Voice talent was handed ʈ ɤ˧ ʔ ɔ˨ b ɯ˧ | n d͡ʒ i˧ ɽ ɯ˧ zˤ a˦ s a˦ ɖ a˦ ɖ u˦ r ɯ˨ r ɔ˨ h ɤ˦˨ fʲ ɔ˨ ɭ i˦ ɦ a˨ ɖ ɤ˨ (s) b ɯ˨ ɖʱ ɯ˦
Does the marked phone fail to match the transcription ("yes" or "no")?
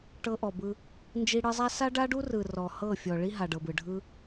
yes